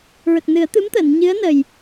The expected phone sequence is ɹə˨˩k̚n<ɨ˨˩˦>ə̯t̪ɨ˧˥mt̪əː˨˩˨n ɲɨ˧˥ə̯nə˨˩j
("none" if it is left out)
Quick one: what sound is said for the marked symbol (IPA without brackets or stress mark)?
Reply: ɨ˨˩˦